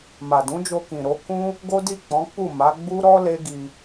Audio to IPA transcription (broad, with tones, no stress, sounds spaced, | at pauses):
m a˨ d ũ˨˦ d͡ʒ o˧ k ĩ˨ ɾ o˨˦ k ũ˦ | ɡ o˦ d i˦˨ k͡p ɔ̃˨˦ k͡p u˦˨ m a˨˦ ɡ͡b u˦ ɾ ɔ˦ l e˦ ɡ i˧